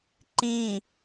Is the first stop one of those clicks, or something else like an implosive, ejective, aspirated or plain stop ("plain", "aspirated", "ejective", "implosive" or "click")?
click